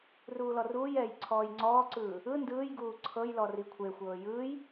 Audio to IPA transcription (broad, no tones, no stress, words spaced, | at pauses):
ruːlɔruːjɛːj ǀʰɔːjŋ͡ǀɔːǀɯː | ɯ ndɯːjɡuː ǀʰɤjlɔ rikʷʰexʷɤː jɯːj